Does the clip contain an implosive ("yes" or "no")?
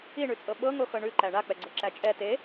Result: yes